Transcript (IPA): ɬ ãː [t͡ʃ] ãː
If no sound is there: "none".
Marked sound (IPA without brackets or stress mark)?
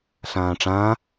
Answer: ʈ͡ʂ